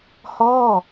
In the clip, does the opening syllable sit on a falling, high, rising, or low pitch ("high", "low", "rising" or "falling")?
falling